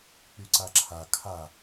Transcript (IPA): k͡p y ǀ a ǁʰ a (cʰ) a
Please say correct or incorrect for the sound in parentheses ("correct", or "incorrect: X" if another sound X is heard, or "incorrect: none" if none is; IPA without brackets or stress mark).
incorrect: kʰ